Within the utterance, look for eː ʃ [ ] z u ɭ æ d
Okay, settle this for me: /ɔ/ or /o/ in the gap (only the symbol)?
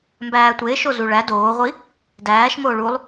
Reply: o